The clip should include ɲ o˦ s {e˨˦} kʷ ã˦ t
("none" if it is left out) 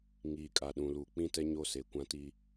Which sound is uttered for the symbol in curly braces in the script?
e˨˦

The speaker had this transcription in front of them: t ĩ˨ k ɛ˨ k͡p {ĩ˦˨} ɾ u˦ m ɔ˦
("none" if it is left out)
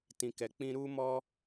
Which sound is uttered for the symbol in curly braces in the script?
ĩ˧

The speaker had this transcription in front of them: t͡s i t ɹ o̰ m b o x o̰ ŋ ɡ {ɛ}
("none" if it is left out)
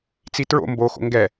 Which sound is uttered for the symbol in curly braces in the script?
ɛ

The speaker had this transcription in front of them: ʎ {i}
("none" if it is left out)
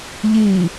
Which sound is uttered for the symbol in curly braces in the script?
i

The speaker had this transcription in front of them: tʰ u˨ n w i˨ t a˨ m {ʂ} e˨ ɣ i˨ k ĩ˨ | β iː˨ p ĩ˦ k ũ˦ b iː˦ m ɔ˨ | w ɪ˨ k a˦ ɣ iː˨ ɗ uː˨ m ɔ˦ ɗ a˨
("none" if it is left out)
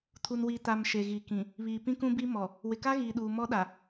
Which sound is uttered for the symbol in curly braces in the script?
ʃ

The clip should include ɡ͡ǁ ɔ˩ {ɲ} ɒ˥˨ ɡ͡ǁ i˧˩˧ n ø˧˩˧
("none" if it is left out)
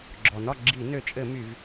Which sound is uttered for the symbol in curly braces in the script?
n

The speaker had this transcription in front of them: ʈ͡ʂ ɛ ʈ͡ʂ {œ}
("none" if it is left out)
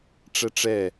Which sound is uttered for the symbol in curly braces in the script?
ɛ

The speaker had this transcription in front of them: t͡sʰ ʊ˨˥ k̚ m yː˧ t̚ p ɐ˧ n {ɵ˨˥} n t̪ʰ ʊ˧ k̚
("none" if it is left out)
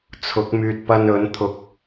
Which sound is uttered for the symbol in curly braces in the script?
ɵ˨˥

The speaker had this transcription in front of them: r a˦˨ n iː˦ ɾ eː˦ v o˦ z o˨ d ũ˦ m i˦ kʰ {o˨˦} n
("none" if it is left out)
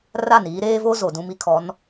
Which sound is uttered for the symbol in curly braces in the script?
ɔ˨˦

